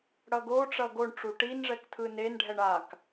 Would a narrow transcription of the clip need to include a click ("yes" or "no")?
no